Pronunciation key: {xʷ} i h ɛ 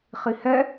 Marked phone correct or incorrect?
incorrect